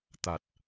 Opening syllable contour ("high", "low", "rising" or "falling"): low